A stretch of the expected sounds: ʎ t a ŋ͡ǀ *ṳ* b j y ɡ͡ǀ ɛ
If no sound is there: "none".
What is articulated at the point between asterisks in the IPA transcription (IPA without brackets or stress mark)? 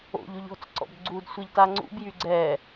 ṵ